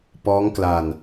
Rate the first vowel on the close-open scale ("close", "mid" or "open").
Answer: mid